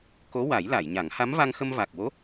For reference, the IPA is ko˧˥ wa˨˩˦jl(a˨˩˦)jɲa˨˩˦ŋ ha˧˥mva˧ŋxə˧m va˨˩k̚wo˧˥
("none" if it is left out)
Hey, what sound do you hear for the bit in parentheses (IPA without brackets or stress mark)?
a˨˩˨